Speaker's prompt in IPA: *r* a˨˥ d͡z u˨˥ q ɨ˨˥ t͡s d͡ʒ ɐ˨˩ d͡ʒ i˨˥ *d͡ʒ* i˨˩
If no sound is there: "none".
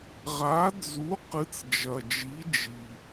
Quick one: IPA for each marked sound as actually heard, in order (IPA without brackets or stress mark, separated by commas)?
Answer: ʁ, d͡ʒ